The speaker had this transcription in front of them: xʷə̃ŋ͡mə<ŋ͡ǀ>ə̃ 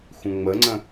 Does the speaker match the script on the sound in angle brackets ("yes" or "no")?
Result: yes